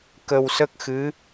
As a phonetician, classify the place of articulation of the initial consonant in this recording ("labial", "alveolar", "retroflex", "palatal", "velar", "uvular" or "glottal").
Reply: velar